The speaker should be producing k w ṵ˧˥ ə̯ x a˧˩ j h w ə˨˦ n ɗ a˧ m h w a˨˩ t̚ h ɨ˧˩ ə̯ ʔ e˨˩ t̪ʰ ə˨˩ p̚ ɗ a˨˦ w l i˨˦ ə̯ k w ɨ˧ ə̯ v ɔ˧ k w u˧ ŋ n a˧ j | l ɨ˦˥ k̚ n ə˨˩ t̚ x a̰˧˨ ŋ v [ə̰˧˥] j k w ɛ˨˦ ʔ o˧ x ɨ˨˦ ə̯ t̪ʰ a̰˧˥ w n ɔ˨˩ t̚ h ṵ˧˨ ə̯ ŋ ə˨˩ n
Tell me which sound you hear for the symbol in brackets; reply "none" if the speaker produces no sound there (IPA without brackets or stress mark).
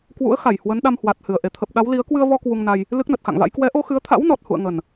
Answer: a̰˧˥